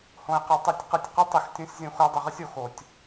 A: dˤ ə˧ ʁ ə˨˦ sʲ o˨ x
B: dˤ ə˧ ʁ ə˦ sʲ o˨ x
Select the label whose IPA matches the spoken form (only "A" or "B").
B